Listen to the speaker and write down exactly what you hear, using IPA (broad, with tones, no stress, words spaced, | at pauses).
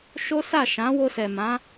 ʃo˦sa˦˨ ʃã˨˦wo˧sɛ˨ mã˨˦